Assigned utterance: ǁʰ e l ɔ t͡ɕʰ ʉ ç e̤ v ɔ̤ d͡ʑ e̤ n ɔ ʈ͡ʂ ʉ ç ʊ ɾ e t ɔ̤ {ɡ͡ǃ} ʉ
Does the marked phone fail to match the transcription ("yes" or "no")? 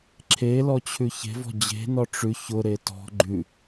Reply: no